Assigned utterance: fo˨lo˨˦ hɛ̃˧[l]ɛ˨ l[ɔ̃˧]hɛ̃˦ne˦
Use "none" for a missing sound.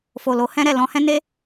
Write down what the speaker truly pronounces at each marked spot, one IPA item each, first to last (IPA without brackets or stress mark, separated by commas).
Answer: ɾ, ɔ̃˧